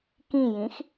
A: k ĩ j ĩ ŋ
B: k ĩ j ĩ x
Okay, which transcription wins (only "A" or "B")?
B